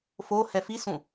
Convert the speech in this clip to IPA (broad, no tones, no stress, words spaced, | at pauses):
fohɛ fisũ